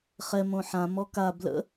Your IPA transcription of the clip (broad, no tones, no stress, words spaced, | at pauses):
χɛ mõħã mɔka blə̰